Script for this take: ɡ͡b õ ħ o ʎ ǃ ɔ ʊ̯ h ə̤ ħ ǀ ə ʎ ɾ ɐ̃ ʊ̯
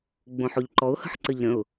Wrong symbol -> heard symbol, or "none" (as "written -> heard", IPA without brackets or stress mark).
ɐ̃ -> ə̃